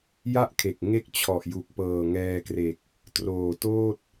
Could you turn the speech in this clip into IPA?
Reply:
j a˥˩ ʔ kʰ e˨˩ k̚ ŋ e˥˩ k̚ t͡ɕʰ ɔ˨˩ ʔ j u˨˩ k̚ p ɤː˨˩ ŋ ɛː˧ k r e˨˩ k̚ | t r oː˨˩ t oː˥˩ t̚

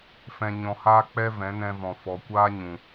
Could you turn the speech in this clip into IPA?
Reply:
f ɛ̃˧ ɲ ɔ̃˧ h aː˦ k͡p ɛ˦ v ɛ̃˨˦ n ɛ̃˧ v ɔ̃˨ f ɔ˨ kʷ aː˦ ɲ ũ˨

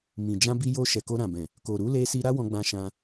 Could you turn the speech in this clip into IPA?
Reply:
m ĩ˨ d͡ʒ ã˧ b i˧ j o˧ ʃ ɛ˨ k o˧ ɾ ã˨ b ɛ̃˨ | k o˨ ɾ u˨˦ l e˧ s i˧ ɾ a˦ w ɔ̃˧ ɡ͡b ã˧ ʃ ã˧

